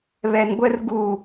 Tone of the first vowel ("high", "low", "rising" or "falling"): low